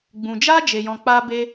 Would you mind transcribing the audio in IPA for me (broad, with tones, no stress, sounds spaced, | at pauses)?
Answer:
ɡ͡b ũ˨ d͡ʒ aː˦ d͡ʒ e˨ j ɔ̃˨ k͡p aː˧ b e˧